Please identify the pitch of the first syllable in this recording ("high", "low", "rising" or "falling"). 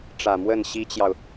low